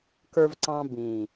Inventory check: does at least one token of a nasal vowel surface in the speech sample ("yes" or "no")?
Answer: yes